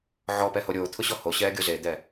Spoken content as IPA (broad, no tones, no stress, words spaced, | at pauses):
ʕɔpɛho ɾʲoːt̪ʰʊɕɔ hoɕɛːɡʲo zed̪ɛ